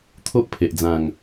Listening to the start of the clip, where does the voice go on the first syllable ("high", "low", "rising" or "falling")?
high